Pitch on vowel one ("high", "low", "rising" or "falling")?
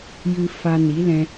high